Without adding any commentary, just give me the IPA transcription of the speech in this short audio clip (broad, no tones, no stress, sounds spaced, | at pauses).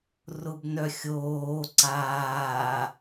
r ʊ b n œ xʲ oː ǀ aː